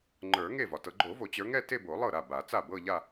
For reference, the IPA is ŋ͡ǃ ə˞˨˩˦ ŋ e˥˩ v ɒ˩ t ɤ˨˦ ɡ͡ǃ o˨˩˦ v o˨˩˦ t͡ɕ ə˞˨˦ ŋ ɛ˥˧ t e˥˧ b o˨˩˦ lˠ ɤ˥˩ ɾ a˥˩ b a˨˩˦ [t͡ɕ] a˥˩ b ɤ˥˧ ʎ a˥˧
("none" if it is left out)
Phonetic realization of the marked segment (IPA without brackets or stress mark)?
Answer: t͡s